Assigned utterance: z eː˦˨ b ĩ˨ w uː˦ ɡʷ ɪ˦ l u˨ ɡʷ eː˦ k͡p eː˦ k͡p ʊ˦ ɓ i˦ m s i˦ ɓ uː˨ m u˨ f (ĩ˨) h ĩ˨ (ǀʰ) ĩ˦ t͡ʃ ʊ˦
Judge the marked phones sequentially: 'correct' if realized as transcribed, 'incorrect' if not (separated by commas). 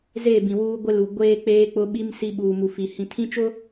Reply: incorrect, incorrect